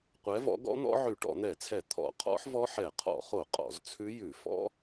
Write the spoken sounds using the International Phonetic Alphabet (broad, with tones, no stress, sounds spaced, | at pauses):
qʷ ɛ˨˦ v ɔ̰˨˦ ɡ ɔ̰˦˥ n̪ ɔ̰˦˥ ʕ ʉ˧˩˧ ʈ ɔ̰˧˩˧ n̪ ɛ˧˩˧ t͡sʰ ɛ˧˩˧ t̪ʰ ɔ̰˧˩˧ qʰ ɔ̰˦˥ ħ v ɔ˦˥ ħ ɛ˧˩˧ qʰ ɔ̰˧˩˧ χ o˧˩˧ qʼ ɔ̰˧˩˧ z t͡sʰ ʉ˦˥ j ʉ˧˩˧ f ɔ̰˦˥